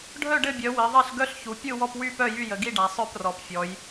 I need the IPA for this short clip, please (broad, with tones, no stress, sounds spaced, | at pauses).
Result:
ɖʱ œ˥˨ ɖ ɘ˥˨ bʲ œ˩˧ w i˩˧ ðˤ e˥˨ ɬ ɡ œ˥˨ ɬ ç u˩˧ pʲ ɯ˥˨ w ɔ˥˨ p w y˥˨ p œ˥˨ j y˥˨ j ə˩˧ ɡ i˥˨ ɖ a˩˧ sˤ œ˥˨ p r ɔ˩˧ p fʲ ɔ˩˧ j